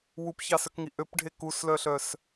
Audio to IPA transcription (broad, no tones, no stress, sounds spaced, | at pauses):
w u p ç ɑ s œ k ŋ i ʔ ø p ɖʱ e k u s l œ ɬ œ s